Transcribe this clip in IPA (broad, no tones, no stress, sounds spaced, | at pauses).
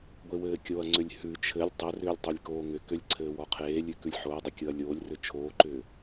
ɡʷ e w ɘː kʲ o ɐ̯ ŋ͡ǀ ʏ lʲ h ʉ t͡ʃʰ ɘ lʲ tˤ ɘ r ʏː lʲ tˤ ʏ lʲ k oː ŋ ʏ k ʏ lʲ ǀʰ ɘː w ɔ qʰ eː lʲ ʉ k ʉ lʲ ħ o ɐ̯ dˤ ɘ kʲ ɤ ɐ̯ lʲ oː lʲ r ʏ t͡ʃʰ oː ǃ ʏː